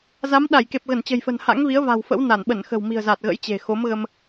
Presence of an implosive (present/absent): present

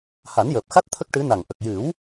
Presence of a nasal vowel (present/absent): absent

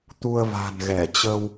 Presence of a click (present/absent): absent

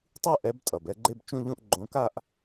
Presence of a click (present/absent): present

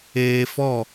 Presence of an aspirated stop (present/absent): absent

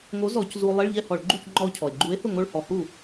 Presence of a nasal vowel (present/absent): absent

